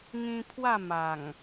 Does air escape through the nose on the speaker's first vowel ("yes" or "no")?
yes